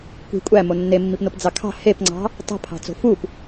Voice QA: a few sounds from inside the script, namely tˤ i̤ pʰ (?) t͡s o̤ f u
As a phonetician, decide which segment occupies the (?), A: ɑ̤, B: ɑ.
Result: A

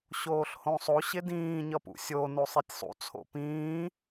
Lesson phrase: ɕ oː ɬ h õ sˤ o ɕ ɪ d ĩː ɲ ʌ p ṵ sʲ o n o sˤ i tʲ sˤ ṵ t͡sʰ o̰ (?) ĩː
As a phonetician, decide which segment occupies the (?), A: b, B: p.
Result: B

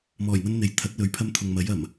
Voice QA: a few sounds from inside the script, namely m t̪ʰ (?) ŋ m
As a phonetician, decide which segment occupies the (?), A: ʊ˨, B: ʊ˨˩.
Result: A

